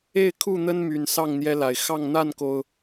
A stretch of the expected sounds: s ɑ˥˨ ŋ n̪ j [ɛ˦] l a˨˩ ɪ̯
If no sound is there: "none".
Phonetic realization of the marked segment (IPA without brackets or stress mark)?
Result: ɛ˦